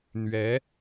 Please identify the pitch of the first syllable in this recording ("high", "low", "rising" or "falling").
rising